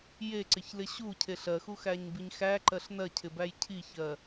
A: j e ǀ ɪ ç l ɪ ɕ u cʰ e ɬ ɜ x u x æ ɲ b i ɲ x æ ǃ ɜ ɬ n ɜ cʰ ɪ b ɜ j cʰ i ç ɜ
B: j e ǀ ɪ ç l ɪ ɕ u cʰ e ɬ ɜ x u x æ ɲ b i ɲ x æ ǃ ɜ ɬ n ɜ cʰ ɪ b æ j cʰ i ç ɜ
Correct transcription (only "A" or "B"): B